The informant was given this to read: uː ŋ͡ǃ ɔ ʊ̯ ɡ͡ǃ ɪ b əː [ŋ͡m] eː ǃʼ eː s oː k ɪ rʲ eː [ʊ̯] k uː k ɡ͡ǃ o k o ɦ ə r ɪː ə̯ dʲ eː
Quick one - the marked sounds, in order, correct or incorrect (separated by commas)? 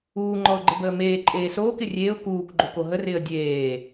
incorrect, correct